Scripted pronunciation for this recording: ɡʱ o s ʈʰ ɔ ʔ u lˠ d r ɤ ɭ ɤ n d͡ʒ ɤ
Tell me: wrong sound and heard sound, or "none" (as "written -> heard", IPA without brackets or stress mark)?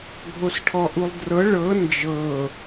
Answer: none